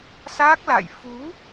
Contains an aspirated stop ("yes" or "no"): no